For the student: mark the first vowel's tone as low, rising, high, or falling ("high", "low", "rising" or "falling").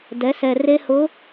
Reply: rising